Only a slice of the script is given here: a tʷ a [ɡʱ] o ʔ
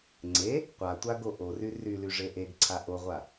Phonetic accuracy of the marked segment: incorrect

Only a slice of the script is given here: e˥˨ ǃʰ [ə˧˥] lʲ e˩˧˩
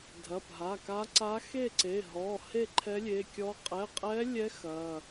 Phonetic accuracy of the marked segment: incorrect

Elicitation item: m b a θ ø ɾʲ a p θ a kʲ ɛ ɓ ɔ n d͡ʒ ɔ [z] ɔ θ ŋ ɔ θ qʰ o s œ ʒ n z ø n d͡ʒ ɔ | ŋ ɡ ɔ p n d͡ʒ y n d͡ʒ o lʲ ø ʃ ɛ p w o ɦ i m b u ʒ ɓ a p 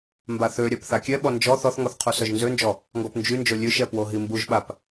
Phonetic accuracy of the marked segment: incorrect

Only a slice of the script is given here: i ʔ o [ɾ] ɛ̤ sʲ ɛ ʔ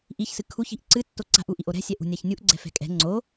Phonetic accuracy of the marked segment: correct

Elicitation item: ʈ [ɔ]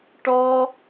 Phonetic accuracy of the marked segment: correct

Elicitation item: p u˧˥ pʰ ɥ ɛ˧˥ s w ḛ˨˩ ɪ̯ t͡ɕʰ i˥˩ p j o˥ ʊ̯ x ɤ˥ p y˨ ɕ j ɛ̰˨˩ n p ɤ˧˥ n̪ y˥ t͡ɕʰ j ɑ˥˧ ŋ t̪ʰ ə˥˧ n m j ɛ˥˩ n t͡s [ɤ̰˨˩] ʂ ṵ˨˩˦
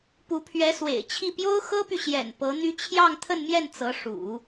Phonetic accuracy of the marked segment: incorrect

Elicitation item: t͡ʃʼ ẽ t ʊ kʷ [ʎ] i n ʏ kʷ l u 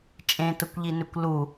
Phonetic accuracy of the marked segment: correct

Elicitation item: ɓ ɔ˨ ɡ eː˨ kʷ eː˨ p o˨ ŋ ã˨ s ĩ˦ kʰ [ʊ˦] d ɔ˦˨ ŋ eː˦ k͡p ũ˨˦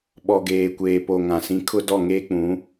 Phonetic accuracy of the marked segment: correct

